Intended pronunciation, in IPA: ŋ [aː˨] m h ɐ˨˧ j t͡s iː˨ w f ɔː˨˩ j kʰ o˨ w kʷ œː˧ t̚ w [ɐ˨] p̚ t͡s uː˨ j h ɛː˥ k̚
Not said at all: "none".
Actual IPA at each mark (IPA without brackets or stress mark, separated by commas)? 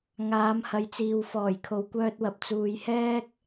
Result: aː˨˧, ɐ˨